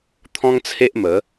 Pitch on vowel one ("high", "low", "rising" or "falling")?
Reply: high